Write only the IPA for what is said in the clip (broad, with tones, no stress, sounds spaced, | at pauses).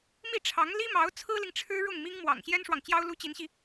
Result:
m i˥˩ ʈ͡ʂʰ ɑ˧˥ ŋ l i˥ m ɑ˧˥ ʊ̯ t͡sʰ ɹ̩˥ l i˨ ŋ ʈ͡ʂʰ ɻ̩˥ ɻ ʊ˥˩ ŋ m i˥ ŋ m w ɑ̰˨˩ ŋ ɕ j ɛ˥ n ʂ w ɑ˨ ŋ t͡ɕ j ɑ˥ ʊ̯ l u˥ t͡ɕ i˧˥ n ɕ i˧